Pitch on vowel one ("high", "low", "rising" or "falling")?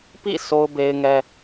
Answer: falling